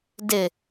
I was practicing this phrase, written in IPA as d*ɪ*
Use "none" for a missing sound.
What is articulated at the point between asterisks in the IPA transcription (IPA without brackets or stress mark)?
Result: ɪ